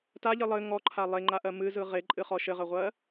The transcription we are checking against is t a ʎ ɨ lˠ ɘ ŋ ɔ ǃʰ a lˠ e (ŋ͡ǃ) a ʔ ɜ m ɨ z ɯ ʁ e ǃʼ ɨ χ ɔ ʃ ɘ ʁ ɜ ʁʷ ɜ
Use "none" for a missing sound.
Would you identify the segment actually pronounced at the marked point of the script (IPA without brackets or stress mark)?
ŋ͡ǃ